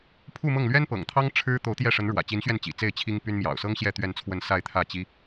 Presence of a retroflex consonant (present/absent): present